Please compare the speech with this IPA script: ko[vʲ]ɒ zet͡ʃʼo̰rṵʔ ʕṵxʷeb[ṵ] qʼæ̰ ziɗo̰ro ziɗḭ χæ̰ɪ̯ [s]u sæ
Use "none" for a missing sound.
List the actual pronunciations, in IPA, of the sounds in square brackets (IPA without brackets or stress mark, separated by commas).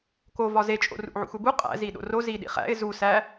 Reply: v, u, z